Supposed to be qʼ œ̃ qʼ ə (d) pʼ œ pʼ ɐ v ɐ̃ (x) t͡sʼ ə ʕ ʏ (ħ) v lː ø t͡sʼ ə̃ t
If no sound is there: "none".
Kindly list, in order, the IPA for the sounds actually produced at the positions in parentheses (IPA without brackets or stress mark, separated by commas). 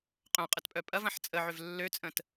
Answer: t, ħ, none